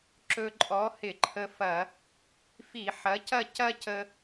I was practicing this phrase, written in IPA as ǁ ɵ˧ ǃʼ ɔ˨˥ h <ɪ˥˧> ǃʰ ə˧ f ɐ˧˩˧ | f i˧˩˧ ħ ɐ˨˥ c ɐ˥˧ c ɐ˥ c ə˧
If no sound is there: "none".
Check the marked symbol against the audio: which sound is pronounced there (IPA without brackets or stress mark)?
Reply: ɪ˧˩˧